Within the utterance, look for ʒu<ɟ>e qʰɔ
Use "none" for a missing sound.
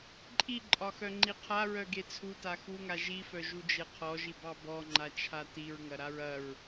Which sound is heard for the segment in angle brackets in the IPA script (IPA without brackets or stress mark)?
d͡ʒ